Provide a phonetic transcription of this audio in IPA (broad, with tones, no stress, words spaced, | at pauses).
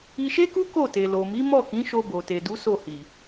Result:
i˧ʃe˦ku˦ ko˦˨te˨lo˨mi˨˦ mɔ˦˨kĩ˨˦ ʃo˧bo˨te˨du˨˦ so˦˨hi˨